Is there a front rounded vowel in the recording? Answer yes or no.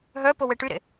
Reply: yes